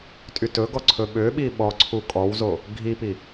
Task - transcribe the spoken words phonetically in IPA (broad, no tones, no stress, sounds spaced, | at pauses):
tʼ y t ɵ ɡ ɔ ǀʰ ɵ ɓ ø ɓ i ɓ ɔ ǀʰ u kʼ ɔ w z o | ɡʱ i p i